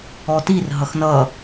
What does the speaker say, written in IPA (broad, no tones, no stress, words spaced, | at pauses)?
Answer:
ɔtirɦʌx nʌ